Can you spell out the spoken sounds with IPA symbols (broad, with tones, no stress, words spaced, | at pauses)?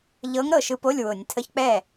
ʎɤ˧˥ŋ ɾɤ˥˩ʃɯ˧˥po˧˥˧lʲ wʊ˧˩˧nʲ tʰə˧˥˧çk͡pɛ˥˩